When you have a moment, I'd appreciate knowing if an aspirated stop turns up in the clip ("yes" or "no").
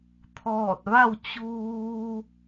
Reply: yes